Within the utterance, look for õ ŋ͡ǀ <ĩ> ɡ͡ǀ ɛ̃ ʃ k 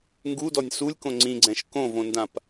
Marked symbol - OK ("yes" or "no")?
yes